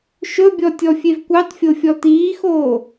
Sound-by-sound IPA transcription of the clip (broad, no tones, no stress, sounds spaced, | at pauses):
ʃ ɵ bʲ ɔ tʲ ɔ fʲ e v kʷ ɑ t fʲ o fʲ ɔ t iː x oː